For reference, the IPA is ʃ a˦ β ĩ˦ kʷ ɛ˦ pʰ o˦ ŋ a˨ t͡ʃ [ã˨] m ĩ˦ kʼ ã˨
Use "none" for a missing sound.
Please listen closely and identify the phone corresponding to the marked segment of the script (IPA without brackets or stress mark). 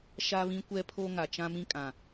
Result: ã˦